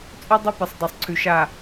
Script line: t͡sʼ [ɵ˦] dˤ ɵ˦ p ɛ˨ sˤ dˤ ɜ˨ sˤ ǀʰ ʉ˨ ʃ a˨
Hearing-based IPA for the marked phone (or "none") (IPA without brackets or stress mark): ɵ˦